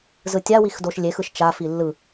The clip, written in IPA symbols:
z ɯ tʲ a w i x d o ʃ lʲ e x ɯ ʃ t͡ʃ a f i lː ɯ

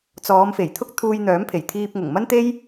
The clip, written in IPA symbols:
t͡s ɔː˨˧ m f e˨˩ j t̪ʰ ʊ˥ k̚ t̪ʰ uː˧ j n̪ œː˨˥ m pʰ e˨˩ j t̪ʰ iː˧ p̚ ŋ ʊ˨˩ ŋ m ɐ˥ n t̪ e˥ j

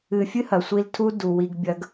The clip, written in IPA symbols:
ɨ˨ fʲ ɨ˦ h ɐ˨ sʷ i˧ l tʰ u˦ d u˨ w i˧ ɡ bʲ ɐ˦ ɡ

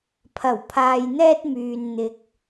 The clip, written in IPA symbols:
pʰ ɐ˨˩ w pʰ aː˨ j n̪ ɛː˧ t̚ m yː˨ n n̪ ɪ˨ k̚

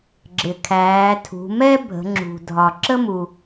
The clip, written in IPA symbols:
ɡ͡ǁ ɪ˩ kʰ æː˩˧ tʰ ṳ˩˧ m ɛ˥ bʱ ə̤˩˧ ŋ͡ǁ ṳ˩ dʱ ɒ˩ ǁ ə˥ m u˩

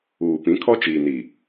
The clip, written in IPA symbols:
uː˨ p ĩ˨˦ kʰ ɔ˦ t͡ʃ iː˨ n i˨

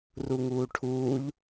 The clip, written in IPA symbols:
r u ŋ uː ʈʰ uː ʎ

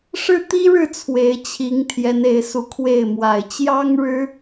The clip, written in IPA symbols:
ʂ ɻ̩˥˩ t̪ i˥ ɻ ɻ̩˥˩ t͡sʰ w e˧˥ ɪ̯ t͡ɕʰ i˧˥ ŋ t̪ʰ j ɛ˧˥ n e˧˥ ɪ̯ s u˧˥ kʰ w e˥˩ ɪ̯ m w a˨˩ ɪ̯ t͡ɕ j ɑ˥ ŋ ɻ ɻ̩˥

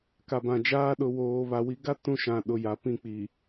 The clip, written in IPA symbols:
k a˨ b ã˨ d͡ʒ aː˦ ɗ ʊ˨ w oː˨ β a˨ w i˨˦ ɡ a˦ t ũ˦ ʃ ã˨ ɗ ʊ˨ j a˨ p ĩ˦˨ k͡p i˨

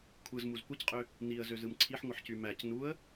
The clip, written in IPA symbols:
kʷʰ ɯ z m u z kʷ ɯ c qʼ ø | n i ə̯ z ø z ɯ m ǀʰ i ħ ŋʷ ɯ ħ c y m æ c n u ə̯

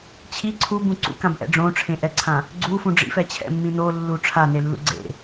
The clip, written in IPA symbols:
t͡ɕʰ i ǀʰ u b ũ ǀ ṵ k ã b ʔ ɛ̰ ɖ͡ʐ õ ʈ͡ʂʰ ẽ ʔ ɛ ǀʰ ã | ɡ͡ǀ u f ũ ɖ͡ʐ ḭ f ɛ t͡ɕʰ ɛ̰ mː ĩ n o lː u ʈ͡ʂʰ a n e lː ṵ ɡ͡ǀ ḛ

